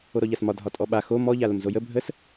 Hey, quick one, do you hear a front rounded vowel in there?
no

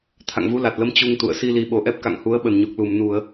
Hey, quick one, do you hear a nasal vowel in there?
no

